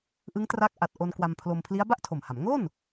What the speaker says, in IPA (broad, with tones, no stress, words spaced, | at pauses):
ʔɯ˦˥ŋ tra˦˥k̚ ʔa˨˩t̚ ʔo˧n kwa˧mpʰlo˧m pʰli˦˥a̯ba˥˩ʔtʰo˨˩mha˩˦m ŋo˥˩n